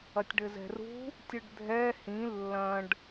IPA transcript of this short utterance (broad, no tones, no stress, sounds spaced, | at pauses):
ɐ tʲ ɖ ɘ z ɛ̤ r ṳ | tʲ ɯ ɖ dʱ ɛ h ĩ lː ɐ̃ ɖ